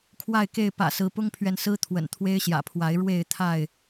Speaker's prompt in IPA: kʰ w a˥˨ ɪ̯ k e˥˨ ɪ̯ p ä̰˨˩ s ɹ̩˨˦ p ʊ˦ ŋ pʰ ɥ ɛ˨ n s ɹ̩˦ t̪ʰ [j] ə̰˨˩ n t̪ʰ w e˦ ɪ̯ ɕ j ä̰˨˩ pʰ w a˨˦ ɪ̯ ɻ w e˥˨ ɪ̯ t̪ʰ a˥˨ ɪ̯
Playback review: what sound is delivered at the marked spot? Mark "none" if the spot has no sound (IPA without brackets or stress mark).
w